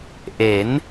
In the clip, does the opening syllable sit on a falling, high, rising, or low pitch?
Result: rising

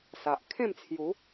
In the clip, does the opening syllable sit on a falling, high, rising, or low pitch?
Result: low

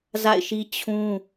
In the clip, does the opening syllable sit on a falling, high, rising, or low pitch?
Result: falling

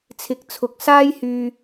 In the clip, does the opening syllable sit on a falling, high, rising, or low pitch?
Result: low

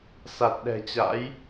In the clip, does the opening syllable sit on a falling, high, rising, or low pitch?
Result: low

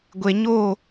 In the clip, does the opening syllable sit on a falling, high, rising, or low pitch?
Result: low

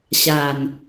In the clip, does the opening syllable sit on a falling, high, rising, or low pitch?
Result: low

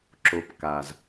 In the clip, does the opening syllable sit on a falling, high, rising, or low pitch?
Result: low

